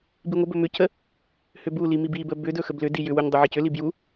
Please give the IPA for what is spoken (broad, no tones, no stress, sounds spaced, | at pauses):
b i ŋʷ ə b ɵ m ʏ c ə | h ʏ b u l i m i b i b ə b ʏ d ɵ x ə b l ʏ d i j ʏ w u ɲ dˤ ʏ ʕ i c ʏ l i b j u